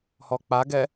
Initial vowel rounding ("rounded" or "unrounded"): rounded